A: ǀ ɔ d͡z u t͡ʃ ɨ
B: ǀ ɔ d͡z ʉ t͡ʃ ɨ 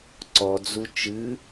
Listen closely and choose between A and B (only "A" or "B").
A